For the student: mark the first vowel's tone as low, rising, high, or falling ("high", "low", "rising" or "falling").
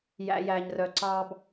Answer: high